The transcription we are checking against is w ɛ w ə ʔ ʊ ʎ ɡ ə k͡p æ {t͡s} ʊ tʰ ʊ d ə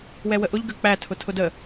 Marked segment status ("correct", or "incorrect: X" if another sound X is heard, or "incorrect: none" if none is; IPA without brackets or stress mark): incorrect: tʰ